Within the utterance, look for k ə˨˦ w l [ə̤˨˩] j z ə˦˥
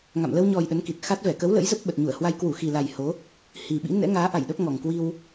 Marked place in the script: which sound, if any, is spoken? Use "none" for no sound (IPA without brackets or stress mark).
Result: ə̰˧˥